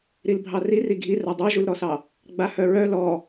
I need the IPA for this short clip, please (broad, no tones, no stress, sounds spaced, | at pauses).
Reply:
ɾ i l bʱ ɑ r i r i ɡʱ i r a dˤ œ ʒ u l ɾ ɔ s ɑ | ɡ͡b a h œ ɹ œ l ɔ